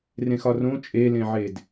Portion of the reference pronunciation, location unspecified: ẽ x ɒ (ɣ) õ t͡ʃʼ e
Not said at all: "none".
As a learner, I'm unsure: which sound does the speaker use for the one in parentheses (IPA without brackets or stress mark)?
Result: r